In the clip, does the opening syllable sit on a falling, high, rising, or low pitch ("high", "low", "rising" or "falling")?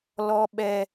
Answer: high